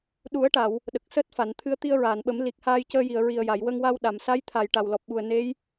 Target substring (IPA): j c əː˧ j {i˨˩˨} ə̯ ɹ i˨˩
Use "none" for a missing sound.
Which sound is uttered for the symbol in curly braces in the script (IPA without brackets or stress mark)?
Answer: i˨˩˨